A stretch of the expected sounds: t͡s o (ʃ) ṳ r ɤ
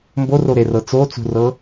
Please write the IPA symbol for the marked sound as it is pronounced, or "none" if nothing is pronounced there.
t͡s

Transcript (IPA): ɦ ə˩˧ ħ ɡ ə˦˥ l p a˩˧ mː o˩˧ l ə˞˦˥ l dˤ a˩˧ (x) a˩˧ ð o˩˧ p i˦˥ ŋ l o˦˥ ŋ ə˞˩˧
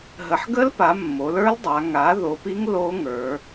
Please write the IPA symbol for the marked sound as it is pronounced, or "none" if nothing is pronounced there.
ŋ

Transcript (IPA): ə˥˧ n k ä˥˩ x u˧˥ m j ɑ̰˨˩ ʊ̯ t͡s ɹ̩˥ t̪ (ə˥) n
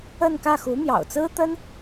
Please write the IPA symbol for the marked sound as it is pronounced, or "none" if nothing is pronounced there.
ə˥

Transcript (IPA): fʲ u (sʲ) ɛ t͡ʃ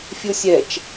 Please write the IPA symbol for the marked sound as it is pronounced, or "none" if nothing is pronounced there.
sʲ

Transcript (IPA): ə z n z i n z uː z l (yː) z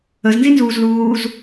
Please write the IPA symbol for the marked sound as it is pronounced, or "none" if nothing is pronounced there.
uː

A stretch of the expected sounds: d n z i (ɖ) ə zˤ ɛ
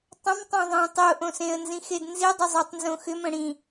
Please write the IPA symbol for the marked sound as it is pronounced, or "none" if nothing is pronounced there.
dˤ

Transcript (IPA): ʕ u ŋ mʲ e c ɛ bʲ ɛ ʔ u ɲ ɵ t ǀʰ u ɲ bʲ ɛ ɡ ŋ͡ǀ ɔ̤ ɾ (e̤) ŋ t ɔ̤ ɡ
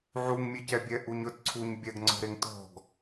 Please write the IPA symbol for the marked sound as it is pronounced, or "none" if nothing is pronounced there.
e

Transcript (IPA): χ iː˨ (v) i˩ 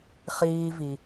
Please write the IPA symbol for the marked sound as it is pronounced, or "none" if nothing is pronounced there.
v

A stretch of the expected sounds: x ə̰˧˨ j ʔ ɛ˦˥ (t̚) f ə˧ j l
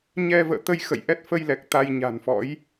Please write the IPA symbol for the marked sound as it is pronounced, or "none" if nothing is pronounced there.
t̚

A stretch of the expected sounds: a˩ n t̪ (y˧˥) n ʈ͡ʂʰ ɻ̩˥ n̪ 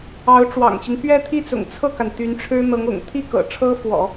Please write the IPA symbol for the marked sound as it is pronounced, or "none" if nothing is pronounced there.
y˧˥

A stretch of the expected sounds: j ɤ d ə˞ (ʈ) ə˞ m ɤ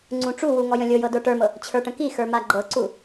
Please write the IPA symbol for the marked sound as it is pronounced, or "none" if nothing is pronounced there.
ʈ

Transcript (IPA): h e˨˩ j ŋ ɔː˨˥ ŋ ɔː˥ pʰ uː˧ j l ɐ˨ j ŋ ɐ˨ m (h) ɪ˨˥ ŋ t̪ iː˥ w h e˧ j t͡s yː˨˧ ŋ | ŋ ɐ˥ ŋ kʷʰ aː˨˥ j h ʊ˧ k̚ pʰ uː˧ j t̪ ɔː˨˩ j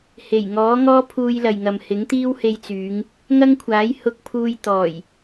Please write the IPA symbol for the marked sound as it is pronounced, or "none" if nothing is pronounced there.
h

